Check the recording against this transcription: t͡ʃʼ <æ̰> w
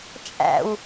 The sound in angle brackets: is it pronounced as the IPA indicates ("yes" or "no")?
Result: yes